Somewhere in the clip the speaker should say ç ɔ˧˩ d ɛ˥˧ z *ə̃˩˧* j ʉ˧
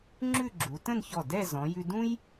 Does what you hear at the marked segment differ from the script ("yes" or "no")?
yes